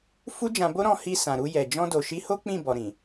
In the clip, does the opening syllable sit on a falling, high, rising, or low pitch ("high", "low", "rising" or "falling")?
high